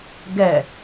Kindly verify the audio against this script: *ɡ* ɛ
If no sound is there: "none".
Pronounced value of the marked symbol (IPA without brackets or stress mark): ɡ